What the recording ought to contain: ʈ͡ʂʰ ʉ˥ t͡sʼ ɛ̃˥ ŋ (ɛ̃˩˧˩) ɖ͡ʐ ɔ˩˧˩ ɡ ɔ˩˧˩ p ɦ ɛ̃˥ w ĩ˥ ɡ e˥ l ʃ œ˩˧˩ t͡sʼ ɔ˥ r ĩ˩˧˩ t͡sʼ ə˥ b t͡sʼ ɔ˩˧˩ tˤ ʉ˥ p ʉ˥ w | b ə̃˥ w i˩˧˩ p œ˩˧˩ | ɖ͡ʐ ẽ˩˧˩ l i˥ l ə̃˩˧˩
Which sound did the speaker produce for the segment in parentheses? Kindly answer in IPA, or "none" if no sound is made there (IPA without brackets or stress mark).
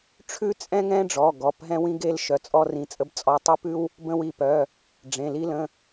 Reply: ɛ̃˥